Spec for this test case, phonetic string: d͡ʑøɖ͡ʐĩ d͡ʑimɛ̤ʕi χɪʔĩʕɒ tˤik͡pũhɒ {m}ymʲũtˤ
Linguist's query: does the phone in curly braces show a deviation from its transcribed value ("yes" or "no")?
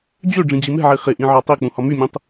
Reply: no